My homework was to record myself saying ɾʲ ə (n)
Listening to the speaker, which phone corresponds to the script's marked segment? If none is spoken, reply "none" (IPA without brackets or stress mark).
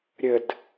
d